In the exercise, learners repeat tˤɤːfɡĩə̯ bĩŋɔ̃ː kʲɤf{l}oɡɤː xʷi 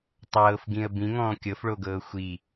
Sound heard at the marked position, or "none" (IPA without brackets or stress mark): ɭ